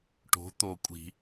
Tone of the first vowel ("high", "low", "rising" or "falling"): rising